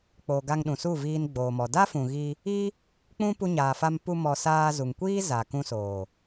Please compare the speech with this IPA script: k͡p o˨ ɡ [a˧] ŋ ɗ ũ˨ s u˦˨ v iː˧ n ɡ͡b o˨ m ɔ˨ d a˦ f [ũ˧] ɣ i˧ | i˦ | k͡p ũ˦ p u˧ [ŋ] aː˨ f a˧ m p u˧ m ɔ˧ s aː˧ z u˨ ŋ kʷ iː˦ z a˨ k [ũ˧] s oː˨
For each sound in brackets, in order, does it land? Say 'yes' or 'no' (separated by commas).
yes, no, no, yes